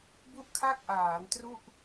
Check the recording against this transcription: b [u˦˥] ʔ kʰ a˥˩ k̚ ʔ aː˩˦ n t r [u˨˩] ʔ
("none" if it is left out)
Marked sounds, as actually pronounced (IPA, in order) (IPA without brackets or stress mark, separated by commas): u˥˩, u˥˩